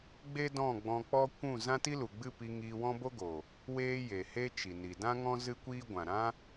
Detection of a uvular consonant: absent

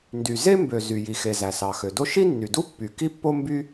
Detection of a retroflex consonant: absent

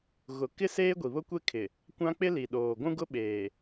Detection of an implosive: present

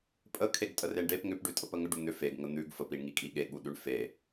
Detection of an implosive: present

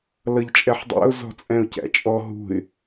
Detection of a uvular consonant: absent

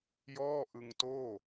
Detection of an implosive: absent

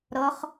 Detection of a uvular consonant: present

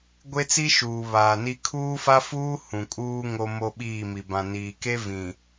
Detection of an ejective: present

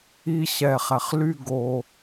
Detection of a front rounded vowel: present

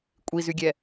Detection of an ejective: present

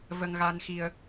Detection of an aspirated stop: absent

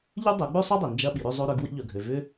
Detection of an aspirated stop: absent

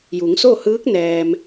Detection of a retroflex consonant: absent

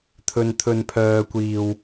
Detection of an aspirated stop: present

